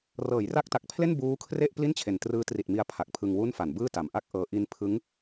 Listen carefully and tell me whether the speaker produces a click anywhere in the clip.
no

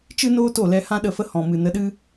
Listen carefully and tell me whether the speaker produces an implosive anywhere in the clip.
yes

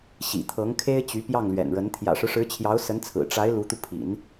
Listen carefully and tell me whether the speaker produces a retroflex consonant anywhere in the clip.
yes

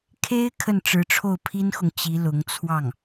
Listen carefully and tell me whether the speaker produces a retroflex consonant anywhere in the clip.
yes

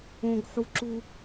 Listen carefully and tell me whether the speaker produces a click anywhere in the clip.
yes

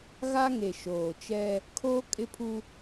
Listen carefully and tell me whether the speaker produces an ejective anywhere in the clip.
yes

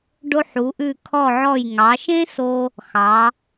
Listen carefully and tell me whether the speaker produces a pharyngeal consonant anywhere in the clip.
yes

